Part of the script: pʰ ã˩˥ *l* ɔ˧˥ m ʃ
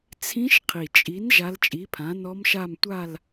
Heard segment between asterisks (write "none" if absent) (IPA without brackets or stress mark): n